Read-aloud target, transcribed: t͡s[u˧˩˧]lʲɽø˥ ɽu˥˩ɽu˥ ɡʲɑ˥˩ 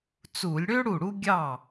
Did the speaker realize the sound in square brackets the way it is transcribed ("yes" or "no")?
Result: yes